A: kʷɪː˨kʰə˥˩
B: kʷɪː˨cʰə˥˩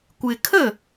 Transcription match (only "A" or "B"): A